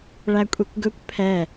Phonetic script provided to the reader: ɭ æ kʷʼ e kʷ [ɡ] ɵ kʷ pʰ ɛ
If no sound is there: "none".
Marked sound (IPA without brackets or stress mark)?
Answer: ɡ